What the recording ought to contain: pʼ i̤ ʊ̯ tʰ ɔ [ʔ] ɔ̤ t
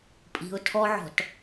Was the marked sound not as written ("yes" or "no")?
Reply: yes